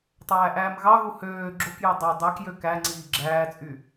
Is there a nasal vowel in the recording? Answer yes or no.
no